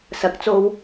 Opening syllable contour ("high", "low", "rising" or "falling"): rising